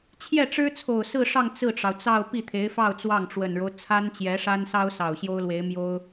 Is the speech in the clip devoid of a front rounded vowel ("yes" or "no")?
yes